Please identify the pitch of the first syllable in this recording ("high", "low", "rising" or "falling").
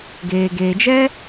low